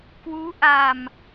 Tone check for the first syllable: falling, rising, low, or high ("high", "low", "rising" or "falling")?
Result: rising